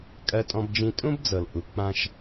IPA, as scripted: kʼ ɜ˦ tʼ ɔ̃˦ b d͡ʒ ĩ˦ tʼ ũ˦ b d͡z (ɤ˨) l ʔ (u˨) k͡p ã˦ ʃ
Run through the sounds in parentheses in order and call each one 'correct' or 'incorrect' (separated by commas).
correct, correct